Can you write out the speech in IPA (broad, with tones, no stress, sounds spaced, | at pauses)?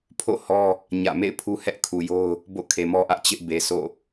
pʰ o̰˦˨ h ɔ˦ | ɲ ä̰˦˨ m ḛ˦˨ ɪ̯ pʰ u˦ h ɛ˦ ʔ kʰ u˨ j o˦ ʊ̯ | b o̰˦˨ kʰ e˨ m ɔ˦ ʔ ä˦ ʔ t͡ɕ ɪ˦ ʔ b e˨ sʰ o̰˦˨